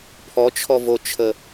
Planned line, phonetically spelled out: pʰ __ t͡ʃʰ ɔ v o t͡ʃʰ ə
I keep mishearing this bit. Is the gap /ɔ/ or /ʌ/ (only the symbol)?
ɔ